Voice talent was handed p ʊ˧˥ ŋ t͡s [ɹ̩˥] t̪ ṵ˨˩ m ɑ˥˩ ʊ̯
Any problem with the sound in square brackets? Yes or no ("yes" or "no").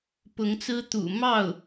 no